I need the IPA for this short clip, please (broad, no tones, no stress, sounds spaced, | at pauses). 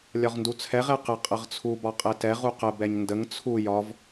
lʲ ɒ ʁ n d u t͡sʰ ɛ ʁ ɛ q ə qʼ ə ʁ t͡sʰ u b ɒ qʼ ɛ t ɛ ʁ u q ə b ɛ ɲ n d ə ŋ t͡sʰ u j ɒ v